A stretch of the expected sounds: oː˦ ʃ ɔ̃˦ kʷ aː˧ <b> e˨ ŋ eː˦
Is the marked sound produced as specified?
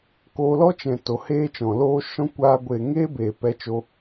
no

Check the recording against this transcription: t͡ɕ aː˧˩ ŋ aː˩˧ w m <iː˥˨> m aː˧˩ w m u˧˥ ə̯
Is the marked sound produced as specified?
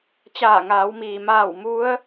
no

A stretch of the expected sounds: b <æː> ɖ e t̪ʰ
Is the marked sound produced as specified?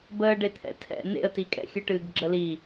no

